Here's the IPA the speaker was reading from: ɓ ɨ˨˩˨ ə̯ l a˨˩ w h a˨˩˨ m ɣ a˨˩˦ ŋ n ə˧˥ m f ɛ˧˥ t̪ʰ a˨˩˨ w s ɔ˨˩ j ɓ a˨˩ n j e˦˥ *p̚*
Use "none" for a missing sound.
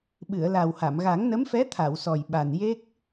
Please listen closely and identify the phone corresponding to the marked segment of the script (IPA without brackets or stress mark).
k̚